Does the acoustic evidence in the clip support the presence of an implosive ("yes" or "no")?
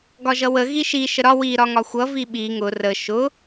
yes